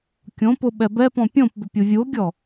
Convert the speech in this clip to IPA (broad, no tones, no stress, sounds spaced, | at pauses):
kʲ õ p ʊ ɓ ɛ b ɛ p ɔ̃ pʲ õ p b ʏ pʲ u vʲ u o̯ ɡʲ ɔ